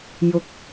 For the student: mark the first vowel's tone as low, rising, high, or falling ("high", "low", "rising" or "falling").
low